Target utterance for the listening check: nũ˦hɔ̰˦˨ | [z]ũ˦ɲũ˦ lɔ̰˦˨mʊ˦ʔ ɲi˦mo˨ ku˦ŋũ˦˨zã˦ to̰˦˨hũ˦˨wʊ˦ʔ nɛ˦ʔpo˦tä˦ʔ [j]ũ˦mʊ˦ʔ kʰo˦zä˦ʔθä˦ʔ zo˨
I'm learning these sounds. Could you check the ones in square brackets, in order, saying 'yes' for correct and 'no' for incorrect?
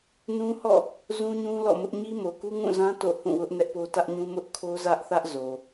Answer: yes, no

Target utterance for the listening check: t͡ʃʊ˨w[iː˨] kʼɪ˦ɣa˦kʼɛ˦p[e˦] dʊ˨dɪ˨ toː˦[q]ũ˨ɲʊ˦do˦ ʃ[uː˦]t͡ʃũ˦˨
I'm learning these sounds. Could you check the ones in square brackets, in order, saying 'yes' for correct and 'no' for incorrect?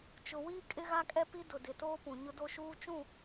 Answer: no, no, no, yes

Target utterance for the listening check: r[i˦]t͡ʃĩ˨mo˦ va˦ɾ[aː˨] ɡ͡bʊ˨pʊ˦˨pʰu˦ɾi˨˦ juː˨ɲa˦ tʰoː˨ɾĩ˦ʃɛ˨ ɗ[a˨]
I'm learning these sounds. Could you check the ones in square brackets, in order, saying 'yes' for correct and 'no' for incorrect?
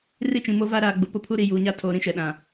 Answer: yes, yes, no

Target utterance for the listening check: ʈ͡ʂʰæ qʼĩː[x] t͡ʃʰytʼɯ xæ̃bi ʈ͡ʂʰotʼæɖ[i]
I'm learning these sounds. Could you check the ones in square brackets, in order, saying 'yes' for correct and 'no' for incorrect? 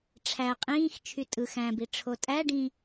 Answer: yes, no

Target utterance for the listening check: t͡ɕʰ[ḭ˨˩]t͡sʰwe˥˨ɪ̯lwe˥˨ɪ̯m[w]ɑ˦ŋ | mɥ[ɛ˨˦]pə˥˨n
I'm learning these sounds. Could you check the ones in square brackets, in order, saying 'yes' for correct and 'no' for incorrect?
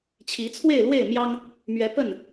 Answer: no, no, yes

